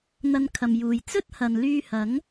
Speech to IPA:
n̪ ɐ˧ n kʰ ɐ˨ m j uː˨ j t͡s ɵ˥ t̚ h ɐ˨ n l yː˧ h ɐ˨˥ ŋ

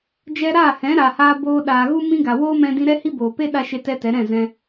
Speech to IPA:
d͡ʒ ɛ˧ ɾ aː˦˨ h ɛ̃˨˦ ɾ a˨ h aː˧ b oː˧ ɗ aː˨ ɣ u˦ m ĩ˦ ɡ a˨ w oː˦ m ɛ̃˧ d ĩ˧ ɾ ɛ˦ h i˦ b oː˨ p e˦ ɗ a˧ ʃ e˦ t ɛ˦ t ɛ˨˦ ɾ ɛ̃˦˨ z ɛ̃˧

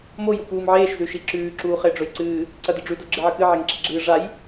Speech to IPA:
m o j u k uː m ʕ eː ʃ z ʉ ʃ i ǁ ʉː ǁ uː χ e ɖ͡ʐ ɵ j ǀ ɨː | ǀ ɐ d ɨ ɖ͡ʐ ʉ d o ɡ͡ǁ ɨ ʕ ɨ k ɨ ʕ e ŋ ǁ i ɡ͡ǁ ɨː ʐ a j

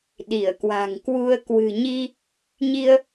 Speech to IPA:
ɗ i˧˩ ə̯ k w a̤˨˩ ŋ k w u˧ ə̯ k w ɨ̤˨˩ ɲ i˧ | ɲ i˧ ə̯

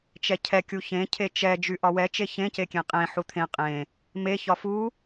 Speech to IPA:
t͡ʃ ɛ cʰ ɛ kʲ u ç ẽ cʰ e t͡ʃ ɛ d͡ʒ y ʔ ɒ w ɛ t͡ʃ e ç ẽ c e kʲ ẽ qʼ ẽ ħ u t̪ʰ ẽ qʼ ẽ | m e ç ɒ f u

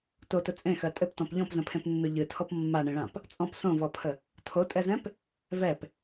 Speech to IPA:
t o t ə t͡sʼ ẽ x ɜ tʼ ɘ p t ɔ̃ p ʎ ɔ̃ p z ə̃ pʰ ẽ p nː o ʎ ɨ tʰ ɔ p mː a ɳ ẽ ɭ ã p | t͡sʼ ɔ̃ p s õ v ɔ pʰ ə | tʰ o tʼ ɛ z ɛ̃ p | v ɛ p

